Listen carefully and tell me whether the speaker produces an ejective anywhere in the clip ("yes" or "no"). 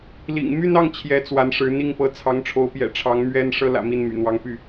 no